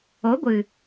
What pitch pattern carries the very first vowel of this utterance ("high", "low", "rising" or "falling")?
rising